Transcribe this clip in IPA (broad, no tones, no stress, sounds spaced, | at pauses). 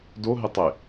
d o ɦ ɪ tˤ ɪ